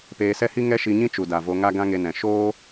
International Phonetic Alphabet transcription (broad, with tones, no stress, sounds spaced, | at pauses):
p eː˧ s ɛ˦ h i˦ ŋ ɛ˦ ʃ i˧ ɲ ĩ˦ t͡ʃ u˨ d a˨ v o˧ ŋ a˦ ɡ ã˦ ŋ e˧ n ɛ̃˨ ʃ oː˦